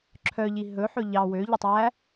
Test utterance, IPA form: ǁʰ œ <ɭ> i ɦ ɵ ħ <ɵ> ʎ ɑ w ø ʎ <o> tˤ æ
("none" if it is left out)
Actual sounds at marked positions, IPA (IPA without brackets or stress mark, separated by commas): ʎ, ɵ, ɵ